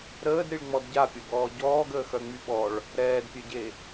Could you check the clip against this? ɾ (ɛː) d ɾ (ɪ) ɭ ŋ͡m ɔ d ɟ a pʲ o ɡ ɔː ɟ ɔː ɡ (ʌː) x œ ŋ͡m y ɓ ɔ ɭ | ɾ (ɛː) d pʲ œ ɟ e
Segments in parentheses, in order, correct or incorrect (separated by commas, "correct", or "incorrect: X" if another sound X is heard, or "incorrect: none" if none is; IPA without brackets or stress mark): incorrect: əː, incorrect: i, incorrect: əː, correct